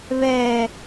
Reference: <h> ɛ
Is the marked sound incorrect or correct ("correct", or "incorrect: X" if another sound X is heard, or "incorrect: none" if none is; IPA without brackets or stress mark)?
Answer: incorrect: β